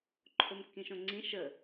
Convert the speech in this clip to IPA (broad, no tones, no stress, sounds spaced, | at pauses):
ǃʰ o m kː ĩ ʃ õ ŋ͡ǀ ĩ ʃ ə